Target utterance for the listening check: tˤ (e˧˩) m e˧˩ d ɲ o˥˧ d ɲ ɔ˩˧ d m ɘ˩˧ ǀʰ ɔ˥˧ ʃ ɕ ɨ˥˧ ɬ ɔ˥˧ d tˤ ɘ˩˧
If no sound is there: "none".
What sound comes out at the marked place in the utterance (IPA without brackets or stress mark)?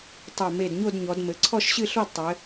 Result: e˧˩